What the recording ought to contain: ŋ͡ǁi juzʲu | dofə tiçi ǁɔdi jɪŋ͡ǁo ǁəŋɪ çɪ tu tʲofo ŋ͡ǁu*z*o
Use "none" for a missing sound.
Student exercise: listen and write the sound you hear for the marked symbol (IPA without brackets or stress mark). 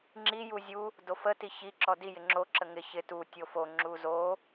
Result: z